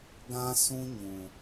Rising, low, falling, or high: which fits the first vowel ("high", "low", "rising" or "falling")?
high